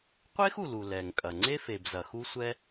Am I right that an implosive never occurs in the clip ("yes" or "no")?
yes